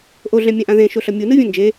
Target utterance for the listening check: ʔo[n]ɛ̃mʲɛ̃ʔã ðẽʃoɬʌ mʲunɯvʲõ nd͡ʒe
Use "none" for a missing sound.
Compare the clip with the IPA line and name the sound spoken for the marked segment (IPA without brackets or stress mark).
ɮ